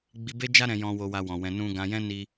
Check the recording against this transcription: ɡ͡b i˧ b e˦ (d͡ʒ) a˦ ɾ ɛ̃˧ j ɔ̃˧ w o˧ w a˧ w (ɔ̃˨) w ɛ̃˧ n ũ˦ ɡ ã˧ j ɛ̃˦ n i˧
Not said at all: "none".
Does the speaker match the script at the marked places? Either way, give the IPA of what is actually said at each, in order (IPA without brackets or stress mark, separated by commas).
d͡ʒ, ɔ̃˨